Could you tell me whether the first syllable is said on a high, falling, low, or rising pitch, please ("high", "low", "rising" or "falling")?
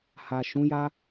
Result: low